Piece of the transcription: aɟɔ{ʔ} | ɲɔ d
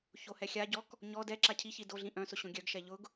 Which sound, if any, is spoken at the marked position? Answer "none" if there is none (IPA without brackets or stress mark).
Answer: k